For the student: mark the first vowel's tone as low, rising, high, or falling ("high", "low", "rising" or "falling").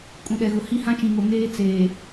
low